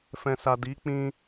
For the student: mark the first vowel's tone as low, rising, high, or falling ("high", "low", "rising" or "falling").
low